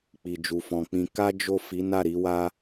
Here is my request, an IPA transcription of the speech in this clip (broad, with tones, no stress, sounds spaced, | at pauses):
k͡p i˨ d͡ʒ u˨ f ɔ̃˨ k͡p ĩ˧ k a˦ d͡ʒ o˦˨ f i˨˦ n a˦˨ ɾ i˨˦ w a˦